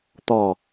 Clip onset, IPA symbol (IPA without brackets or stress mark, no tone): t̪